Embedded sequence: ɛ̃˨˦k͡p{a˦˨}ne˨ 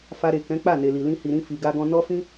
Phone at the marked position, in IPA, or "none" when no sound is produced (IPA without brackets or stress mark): a˦˨